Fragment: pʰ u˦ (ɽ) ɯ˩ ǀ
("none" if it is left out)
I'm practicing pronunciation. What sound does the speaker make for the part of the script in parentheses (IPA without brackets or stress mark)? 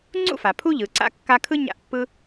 ʎ